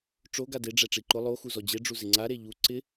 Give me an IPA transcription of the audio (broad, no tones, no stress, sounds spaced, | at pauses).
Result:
ʈ͡ʂ o ɡ a d e ɖ͡ʐ ɛ ʈ͡ʂ i ǃ ʊ lˠ o x u z ɔ d͡ʑ e ɖ͡ʐ u z ɪ ŋ͡ǀ a ɾ e ʎ u ǀ ɪ